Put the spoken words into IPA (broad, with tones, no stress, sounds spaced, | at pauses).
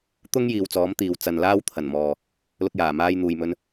t̪ ʊ˥ ŋ j iː˨ w t͡s ɔː˨˥ m t̪ iː˨ w t͡s ɐ˨ n l aː˥ w t̪ʰ ɐ˨˩ n m ɔː˨ | l ʊ˧ k̚ j aː˨˩ m aː˧ j n̪ uː˨ j m ɵ˧ n